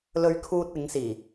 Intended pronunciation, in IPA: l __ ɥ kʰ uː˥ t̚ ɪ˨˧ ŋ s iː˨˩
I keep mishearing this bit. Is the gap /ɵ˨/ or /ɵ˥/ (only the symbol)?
ɵ˥